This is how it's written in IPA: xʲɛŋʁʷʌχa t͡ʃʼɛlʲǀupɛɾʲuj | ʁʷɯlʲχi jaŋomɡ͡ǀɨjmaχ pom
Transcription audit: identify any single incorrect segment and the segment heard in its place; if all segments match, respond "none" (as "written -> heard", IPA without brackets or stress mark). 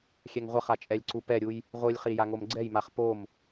ɨ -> ɛ